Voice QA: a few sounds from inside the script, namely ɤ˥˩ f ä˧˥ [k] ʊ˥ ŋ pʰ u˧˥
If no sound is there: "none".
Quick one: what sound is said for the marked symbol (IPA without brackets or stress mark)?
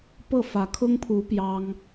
kʰ